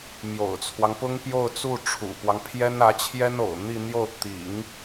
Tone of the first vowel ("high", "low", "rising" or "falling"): low